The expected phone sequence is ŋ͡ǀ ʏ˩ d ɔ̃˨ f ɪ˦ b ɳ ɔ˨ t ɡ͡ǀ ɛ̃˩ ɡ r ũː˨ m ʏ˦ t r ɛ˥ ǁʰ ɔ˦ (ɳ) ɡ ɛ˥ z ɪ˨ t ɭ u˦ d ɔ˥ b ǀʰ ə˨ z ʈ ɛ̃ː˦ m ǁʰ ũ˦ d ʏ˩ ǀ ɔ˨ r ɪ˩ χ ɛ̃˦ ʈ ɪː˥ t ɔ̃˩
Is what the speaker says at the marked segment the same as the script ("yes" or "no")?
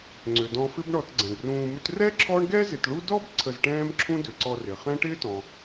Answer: yes